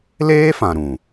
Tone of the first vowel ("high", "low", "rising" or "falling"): high